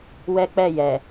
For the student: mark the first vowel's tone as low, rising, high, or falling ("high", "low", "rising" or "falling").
high